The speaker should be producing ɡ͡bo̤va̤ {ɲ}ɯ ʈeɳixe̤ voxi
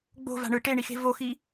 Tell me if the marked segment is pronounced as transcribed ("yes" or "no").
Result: no